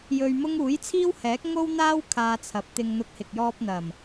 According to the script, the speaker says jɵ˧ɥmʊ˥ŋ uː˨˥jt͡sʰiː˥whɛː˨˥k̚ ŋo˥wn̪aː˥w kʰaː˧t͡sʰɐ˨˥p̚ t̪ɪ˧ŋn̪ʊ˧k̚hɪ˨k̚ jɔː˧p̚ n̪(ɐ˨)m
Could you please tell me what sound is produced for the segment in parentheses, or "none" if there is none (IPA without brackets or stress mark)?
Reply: ɐ˨˩